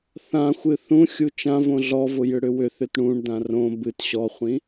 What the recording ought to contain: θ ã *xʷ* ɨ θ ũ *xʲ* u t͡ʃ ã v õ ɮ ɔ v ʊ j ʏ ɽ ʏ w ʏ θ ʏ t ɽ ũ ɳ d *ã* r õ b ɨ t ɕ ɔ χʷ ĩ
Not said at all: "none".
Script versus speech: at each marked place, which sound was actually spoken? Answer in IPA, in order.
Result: xʷ, xʲ, ã

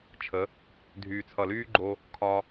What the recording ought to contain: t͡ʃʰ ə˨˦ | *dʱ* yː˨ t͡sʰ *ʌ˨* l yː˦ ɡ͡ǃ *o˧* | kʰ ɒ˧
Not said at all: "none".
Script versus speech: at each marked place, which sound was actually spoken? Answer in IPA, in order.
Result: dʱ, ʌ˨, o˧

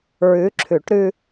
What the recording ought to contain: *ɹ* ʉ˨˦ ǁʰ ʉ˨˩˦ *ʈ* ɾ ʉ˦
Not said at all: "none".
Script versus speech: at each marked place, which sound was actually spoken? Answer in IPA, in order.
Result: ɹ, ʈ

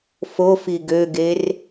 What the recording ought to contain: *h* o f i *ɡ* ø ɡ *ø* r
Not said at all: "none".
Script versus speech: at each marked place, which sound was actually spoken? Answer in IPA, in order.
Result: f, ɡ, e

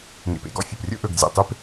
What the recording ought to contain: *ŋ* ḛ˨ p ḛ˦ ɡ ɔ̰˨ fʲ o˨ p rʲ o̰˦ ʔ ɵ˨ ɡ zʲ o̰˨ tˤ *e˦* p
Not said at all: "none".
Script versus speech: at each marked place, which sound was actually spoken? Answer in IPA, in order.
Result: ŋ, e˦

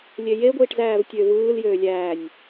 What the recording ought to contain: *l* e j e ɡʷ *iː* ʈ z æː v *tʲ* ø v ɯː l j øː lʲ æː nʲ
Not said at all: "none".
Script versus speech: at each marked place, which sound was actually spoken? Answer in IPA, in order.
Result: lʲ, iː, tʲ

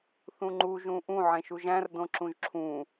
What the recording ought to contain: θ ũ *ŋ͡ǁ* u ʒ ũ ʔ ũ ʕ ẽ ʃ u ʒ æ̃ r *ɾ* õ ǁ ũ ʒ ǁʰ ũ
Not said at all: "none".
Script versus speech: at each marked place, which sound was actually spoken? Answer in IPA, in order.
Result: ŋ͡ǃ, d

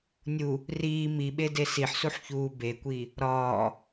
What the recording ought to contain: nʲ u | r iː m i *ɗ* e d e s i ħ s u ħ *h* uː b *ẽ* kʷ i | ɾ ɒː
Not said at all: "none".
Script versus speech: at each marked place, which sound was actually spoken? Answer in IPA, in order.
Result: ɓ, ç, e

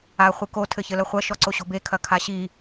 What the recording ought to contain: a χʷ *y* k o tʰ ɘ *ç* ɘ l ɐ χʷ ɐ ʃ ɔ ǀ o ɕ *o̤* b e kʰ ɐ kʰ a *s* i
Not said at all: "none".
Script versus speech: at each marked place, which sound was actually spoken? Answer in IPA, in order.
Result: ɨ, ç, o̤, ɕ

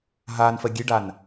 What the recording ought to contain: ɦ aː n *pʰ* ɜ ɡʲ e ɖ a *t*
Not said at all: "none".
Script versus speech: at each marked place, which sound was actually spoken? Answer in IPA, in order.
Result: f, n

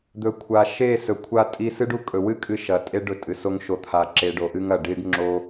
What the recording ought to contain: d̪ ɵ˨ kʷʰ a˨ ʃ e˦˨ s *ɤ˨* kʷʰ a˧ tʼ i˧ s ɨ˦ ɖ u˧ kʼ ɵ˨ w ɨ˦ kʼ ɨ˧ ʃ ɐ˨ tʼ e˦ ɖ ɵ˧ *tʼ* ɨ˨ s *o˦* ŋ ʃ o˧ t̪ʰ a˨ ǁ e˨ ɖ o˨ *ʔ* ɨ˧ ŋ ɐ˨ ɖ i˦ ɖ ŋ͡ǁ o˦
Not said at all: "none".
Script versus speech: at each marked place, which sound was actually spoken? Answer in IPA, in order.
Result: ɵ˨, tʼ, o˦, ʔ

